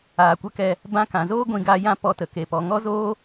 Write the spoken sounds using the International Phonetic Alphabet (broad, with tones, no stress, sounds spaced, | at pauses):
aː˨ kʷ ə˧ k ɛ˧ | b ã˧ k ã˨ z oː˦ ɡʷ ĩ˧ ɡ a˧ j ã˦ p ɔ˧ t ə˨ k e˨ p ɔ˨ ŋ ɔ˦ z oː˦